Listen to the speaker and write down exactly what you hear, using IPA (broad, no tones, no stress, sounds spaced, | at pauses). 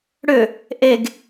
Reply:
ɽ ʏ | ʔ e ɡ